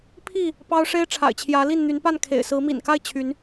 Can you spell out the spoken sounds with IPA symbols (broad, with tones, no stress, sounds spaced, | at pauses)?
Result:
pʰ i˥˨ | p ɑ˦ ʊ̯ ʂ e˦ ɪ̯ ʈ͡ʂʰ a̰˨˩ ɪ̯ t͡ɕʰ j ä˨˦ l i˥˨ n n̪ y˨˦ n p a˥˨ n kʰ ḛ˨˩ ɪ̯ s ɹ̩˨˦ m ḭ˨˩ n k a˥˨ ɪ̯ t͡ɕʰ y˨˦ n